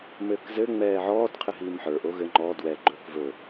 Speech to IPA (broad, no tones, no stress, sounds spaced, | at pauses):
m ɘː k z ɘ ŋ͡m ɛː ʕ ɔː d qʰ ɘ ɦ iː m ħ ə˞ ʔ o ɣ ɘ ŋ͡ǃ ɔ d w ɛ ɡ͡ǃ ɵː k v ɵ